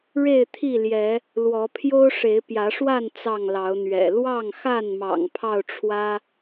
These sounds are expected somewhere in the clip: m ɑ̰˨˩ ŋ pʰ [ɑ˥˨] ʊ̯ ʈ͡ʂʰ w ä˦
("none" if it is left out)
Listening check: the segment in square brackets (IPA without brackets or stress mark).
ɑ˥˨